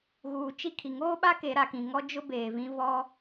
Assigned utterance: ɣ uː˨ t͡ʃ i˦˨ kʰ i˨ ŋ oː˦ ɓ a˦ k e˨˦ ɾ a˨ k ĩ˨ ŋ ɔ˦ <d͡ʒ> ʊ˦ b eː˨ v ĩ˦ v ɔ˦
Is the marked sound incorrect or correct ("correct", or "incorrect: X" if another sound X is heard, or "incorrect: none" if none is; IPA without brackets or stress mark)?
correct